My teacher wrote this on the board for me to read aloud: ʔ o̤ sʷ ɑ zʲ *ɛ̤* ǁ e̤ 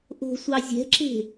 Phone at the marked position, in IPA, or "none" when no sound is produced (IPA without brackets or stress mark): ɛ̤